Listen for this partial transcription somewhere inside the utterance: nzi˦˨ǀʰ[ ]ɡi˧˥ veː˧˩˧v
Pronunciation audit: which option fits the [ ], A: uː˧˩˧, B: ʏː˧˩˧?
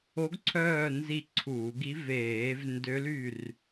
A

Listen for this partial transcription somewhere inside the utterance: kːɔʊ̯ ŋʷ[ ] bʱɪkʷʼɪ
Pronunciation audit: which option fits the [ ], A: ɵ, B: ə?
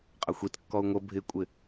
B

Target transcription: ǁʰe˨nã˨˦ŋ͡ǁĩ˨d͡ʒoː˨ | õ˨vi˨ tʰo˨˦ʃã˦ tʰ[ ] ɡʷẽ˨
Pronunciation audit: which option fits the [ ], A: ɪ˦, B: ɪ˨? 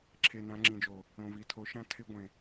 A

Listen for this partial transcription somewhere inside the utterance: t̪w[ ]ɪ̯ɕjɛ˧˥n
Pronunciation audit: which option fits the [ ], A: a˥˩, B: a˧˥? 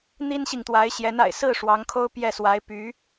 B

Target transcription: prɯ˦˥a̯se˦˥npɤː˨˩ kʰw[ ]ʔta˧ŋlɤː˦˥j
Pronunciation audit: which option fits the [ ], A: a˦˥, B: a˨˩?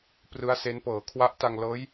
A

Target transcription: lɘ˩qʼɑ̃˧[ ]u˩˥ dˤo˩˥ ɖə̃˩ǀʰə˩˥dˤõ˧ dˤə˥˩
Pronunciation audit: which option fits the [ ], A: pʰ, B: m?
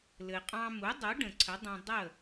B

